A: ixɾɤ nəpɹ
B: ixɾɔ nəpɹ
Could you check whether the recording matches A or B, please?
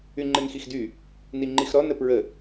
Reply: B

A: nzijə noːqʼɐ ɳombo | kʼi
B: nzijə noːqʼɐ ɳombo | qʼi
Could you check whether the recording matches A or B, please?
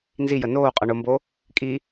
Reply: A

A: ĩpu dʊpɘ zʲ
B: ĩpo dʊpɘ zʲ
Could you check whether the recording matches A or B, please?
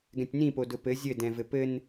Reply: B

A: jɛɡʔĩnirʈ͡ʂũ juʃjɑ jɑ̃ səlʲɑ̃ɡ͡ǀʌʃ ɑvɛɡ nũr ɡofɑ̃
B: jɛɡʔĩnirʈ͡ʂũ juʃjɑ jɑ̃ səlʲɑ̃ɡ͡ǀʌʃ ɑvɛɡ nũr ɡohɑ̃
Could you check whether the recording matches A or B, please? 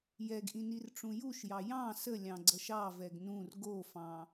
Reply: A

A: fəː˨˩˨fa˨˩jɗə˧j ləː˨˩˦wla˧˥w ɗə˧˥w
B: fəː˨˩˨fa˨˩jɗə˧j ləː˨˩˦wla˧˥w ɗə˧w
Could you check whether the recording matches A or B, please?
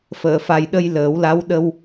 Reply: B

